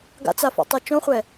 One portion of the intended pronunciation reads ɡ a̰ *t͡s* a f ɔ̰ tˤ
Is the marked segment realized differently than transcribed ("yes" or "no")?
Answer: no